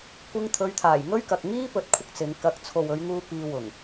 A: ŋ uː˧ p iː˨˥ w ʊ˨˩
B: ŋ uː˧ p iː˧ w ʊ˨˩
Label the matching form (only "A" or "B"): B